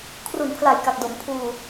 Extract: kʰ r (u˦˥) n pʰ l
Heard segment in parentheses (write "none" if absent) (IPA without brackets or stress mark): u˨˩